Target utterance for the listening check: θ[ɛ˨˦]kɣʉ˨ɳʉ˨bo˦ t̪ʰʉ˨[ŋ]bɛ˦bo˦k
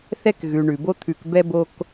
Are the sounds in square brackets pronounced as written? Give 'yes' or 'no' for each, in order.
no, no

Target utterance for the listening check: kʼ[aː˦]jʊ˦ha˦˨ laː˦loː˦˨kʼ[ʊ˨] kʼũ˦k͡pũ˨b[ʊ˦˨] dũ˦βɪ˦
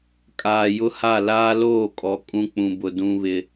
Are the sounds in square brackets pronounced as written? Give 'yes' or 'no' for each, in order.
no, no, no

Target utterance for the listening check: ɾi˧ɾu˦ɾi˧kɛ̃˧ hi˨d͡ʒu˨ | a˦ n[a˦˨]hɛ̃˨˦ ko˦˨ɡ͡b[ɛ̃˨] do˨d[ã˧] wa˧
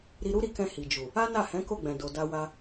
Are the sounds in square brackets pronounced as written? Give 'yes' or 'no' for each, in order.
yes, yes, no

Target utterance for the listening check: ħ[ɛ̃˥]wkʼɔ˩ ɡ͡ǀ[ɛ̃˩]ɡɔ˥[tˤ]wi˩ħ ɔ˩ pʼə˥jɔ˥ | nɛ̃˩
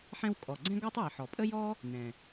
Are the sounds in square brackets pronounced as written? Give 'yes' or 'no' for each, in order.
yes, no, yes

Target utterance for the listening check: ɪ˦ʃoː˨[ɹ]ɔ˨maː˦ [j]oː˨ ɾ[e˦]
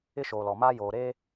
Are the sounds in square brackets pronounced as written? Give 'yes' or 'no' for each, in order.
no, yes, no

